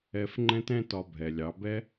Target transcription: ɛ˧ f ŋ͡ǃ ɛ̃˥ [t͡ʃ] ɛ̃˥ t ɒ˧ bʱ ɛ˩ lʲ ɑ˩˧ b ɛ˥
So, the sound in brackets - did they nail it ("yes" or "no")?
no